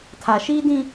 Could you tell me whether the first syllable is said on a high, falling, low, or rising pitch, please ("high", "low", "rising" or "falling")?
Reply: low